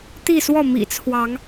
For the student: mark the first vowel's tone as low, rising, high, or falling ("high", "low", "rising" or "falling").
falling